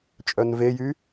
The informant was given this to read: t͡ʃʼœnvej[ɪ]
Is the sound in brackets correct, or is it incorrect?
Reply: incorrect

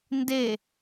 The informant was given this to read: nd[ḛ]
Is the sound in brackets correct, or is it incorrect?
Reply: incorrect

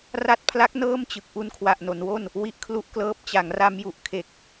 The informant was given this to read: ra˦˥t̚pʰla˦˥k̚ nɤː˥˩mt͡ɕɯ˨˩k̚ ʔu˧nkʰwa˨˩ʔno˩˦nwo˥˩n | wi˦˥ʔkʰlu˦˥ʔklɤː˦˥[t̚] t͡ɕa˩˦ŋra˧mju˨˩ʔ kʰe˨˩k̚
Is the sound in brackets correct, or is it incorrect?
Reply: incorrect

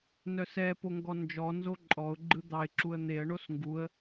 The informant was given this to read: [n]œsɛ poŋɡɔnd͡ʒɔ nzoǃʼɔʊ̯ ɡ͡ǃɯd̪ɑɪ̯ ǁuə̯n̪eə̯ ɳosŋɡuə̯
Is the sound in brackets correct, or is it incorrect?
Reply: correct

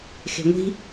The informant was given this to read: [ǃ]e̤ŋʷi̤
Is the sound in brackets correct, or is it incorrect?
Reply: incorrect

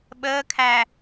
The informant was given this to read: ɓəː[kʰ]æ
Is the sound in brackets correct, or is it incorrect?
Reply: correct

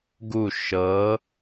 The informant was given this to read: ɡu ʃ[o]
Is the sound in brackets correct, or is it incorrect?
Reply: incorrect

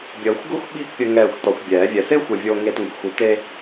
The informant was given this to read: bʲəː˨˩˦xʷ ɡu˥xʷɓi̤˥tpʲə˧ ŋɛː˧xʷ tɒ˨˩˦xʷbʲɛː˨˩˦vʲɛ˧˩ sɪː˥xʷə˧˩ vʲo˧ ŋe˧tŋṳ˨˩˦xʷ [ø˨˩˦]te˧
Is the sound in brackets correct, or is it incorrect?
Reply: incorrect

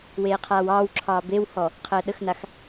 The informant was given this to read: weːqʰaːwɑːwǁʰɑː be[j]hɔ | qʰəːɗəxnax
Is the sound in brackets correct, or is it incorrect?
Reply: incorrect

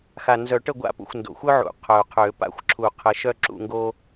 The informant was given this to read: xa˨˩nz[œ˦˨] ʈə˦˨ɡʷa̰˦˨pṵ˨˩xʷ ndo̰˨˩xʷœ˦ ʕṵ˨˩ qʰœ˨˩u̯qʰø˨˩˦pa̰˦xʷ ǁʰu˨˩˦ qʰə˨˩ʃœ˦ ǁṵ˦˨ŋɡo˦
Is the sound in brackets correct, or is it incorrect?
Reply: incorrect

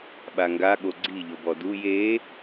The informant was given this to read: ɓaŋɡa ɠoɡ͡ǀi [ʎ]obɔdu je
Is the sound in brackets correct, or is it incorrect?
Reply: correct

